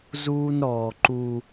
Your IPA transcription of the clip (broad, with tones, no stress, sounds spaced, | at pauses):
z uː˦ n ɾ ɔː˨ ǃ u˦